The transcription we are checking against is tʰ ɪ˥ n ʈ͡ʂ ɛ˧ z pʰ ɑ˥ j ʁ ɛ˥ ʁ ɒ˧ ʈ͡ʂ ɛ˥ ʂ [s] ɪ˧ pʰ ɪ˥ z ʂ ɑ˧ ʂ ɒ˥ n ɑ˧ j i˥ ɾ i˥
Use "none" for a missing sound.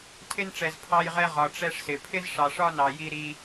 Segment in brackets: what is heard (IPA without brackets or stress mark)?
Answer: s